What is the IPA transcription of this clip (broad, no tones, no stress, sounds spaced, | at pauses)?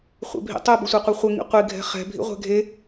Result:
χʷ ḛ bʱ ḭ tˤ ɘ b ɘ sʷ ɛ qʷ i χʷ ɘ ŋ ḭ qʷ i ɡʱ ɛ̤ χ ɛ̤ bʱ ḭ ʁʷ ɛ̤ ɡʱ e